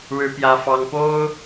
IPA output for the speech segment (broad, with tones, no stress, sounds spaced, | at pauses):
ɻ ɻ̩˥ p j ä˥ f ɑ˥ ŋ p o˥ ʊ̯